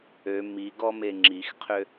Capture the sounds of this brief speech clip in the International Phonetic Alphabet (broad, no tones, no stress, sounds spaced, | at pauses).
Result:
ø m i ɡ ɔ m e ŋ͡ǁ i x qʰ ø